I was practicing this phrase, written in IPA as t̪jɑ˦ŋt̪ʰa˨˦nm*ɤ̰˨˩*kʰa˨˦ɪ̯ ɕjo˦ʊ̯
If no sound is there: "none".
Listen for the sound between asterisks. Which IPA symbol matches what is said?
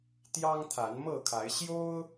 ɤ˥˨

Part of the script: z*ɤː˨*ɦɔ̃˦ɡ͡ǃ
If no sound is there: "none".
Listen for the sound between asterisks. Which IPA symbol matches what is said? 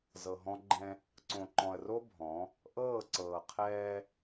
ɤ˨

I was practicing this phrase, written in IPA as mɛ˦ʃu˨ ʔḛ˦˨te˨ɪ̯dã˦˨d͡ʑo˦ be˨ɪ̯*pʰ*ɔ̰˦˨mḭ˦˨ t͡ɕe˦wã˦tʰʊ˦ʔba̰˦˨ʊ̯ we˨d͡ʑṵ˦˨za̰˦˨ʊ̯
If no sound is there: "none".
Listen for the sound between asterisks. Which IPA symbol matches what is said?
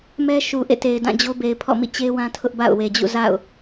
pʰ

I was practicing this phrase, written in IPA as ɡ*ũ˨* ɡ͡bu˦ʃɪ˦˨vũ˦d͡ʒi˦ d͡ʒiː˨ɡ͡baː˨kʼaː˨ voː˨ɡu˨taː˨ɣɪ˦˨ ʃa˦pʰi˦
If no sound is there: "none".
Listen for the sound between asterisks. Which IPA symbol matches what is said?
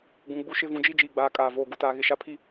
ũ˨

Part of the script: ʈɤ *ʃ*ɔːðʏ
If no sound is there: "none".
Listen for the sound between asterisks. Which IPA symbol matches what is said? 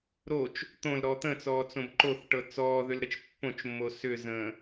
t͡s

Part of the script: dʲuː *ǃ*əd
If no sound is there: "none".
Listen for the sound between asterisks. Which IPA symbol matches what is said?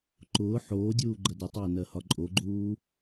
ɡ͡ǃ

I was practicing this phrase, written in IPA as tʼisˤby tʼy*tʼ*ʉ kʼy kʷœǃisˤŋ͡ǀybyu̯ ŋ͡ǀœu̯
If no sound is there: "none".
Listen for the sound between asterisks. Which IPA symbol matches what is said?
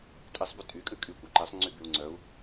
kʼ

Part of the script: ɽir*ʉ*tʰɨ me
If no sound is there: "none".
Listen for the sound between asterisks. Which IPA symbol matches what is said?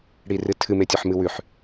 ɨ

